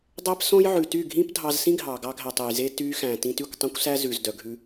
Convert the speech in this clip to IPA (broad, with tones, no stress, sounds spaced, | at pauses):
dˤ æ˦ p s õ˦ j ʕ ʉ˨ t y˦˨ ɡʱ ĩ˦ p dʱ ɑ˧ z s ĩ˦ ɡʱ ɑ˨ ɡ ɑ˧ ɡʱ æ˨ tˤ e˨ j z e˧ t y˧ x æ̃˨ t ĩ˧ t y˦˨ kʷ tˤ õ˦ kʷ s æ˦ z ʉ˨ z d œ˨ ɡʱ ʉ˧